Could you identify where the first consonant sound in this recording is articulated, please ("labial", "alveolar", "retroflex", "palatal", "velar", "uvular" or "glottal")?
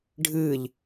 retroflex